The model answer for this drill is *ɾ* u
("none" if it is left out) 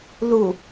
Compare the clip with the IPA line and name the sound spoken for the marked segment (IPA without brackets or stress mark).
l